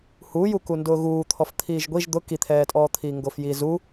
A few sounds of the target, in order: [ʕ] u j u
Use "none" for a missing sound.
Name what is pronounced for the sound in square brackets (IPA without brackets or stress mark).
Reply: h